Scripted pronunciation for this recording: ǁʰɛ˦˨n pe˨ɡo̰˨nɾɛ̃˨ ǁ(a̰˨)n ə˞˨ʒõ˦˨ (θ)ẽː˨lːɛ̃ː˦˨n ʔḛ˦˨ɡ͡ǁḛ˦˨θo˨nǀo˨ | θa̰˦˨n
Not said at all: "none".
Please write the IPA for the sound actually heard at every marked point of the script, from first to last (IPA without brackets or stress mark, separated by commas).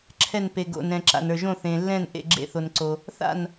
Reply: a̰˨, θ